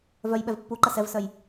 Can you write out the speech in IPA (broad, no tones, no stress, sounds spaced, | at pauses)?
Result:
v œ j ɓ ɛ v pː u ǃ ɐ s ɛ v s œ j